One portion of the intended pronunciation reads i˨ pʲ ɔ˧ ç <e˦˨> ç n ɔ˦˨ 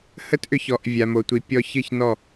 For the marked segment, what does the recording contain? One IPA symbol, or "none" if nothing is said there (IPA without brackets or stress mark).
ɨ˦˨